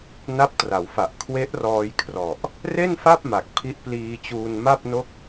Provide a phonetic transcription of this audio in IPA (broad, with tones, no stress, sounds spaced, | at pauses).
n a˦˥ p̚ t r a˩˦ w f a˨˩ ʔ kʰ w e˦˥ ʔ r ɔː˧ j kʰ r ɔ˨˩ ʔ | r e˥˩ n f a˥˩ p̚ m a˨˩ k̚ pʰ i˦˥ ʔ p l iː˧ t͡ɕ uː˧ n m a˥˩ p̚ n o˥˩ k̚